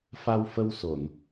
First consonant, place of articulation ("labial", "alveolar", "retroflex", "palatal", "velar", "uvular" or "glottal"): labial